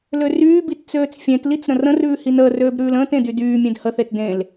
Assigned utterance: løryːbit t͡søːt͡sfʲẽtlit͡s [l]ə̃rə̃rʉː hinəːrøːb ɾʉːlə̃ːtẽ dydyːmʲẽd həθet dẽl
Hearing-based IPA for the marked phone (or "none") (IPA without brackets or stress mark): ɾ